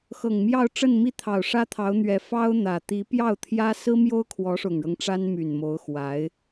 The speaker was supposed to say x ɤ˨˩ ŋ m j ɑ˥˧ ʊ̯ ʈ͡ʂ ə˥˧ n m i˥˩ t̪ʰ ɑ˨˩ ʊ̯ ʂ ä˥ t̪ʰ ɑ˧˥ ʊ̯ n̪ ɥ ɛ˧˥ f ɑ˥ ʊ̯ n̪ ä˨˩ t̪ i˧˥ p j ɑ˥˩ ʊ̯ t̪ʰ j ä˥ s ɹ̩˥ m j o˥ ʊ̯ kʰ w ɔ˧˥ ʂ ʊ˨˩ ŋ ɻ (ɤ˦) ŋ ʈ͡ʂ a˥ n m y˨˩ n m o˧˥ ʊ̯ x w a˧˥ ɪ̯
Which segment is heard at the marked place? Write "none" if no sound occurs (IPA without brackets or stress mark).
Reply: ɤ˦